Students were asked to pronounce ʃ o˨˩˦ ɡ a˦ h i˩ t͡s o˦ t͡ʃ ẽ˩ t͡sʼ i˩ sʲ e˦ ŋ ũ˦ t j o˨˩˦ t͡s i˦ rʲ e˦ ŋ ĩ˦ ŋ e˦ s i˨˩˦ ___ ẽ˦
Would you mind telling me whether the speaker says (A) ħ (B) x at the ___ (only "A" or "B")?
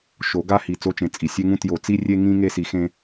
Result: B